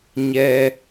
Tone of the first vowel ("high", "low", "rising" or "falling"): high